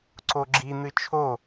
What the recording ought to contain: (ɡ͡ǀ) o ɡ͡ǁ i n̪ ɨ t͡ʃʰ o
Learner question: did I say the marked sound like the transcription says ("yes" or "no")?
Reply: no